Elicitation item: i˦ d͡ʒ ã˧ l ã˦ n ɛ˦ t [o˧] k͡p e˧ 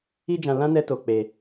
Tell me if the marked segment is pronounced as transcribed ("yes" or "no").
yes